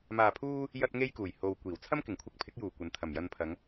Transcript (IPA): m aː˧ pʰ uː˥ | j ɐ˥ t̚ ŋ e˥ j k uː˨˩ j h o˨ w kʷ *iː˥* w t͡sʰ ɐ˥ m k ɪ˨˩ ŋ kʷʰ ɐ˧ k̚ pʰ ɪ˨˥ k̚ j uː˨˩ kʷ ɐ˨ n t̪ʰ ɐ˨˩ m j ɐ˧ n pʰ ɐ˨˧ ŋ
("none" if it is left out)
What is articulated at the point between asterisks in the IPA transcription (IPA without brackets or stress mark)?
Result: iː˨˩